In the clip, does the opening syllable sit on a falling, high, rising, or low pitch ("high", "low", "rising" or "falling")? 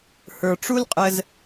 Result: low